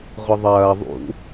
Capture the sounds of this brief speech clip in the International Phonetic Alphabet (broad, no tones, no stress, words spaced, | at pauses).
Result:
ʁʷiðˤɐː ðˤṵ